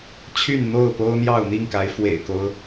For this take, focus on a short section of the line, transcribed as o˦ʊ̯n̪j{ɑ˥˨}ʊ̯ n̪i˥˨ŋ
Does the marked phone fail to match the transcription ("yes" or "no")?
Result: no